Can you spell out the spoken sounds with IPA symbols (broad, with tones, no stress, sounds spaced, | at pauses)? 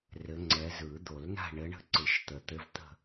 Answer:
r ɘ˨˦ ŋ͡ǀ ɛ˨˦ z ɯ˨˩˦ d̪ o˨˩˦ l n a̤˦˨ ɳ ɘ˨˦ ɳ ə̤˦˨ ǀ ɯ˨˩˦ ʃ t̪ ə˨˩ t̪ ɘ˧˥˧ v t̪ ə̤˦˨